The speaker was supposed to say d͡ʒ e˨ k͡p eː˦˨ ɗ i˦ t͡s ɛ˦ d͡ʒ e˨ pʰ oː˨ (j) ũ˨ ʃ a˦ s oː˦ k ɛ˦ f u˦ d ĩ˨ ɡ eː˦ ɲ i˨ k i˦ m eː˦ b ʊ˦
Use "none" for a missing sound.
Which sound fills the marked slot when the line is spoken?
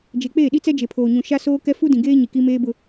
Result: ɲ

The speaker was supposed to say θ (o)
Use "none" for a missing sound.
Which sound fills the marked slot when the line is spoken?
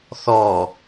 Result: ɔ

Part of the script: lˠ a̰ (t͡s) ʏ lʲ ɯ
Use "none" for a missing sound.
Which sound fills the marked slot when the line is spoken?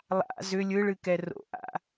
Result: z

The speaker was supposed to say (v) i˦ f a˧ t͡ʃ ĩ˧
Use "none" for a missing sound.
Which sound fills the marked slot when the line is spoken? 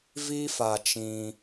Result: v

